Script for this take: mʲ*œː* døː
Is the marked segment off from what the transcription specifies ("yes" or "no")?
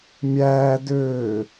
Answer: yes